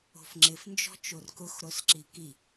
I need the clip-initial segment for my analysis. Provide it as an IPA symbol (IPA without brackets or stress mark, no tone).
o̤